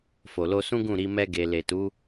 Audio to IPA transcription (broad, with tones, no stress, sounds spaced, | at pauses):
f o˨ l o˧ s ũ˦ ɡ ũ˦˨ ɾ i˧ m ɛ˦ ɡ e˧ l e˨ t u˨˦